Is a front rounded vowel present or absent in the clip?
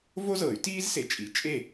present